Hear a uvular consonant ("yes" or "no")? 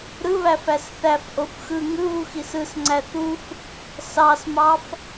no